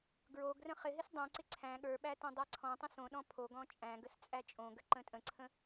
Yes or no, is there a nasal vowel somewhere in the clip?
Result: yes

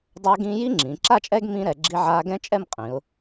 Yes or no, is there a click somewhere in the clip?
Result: yes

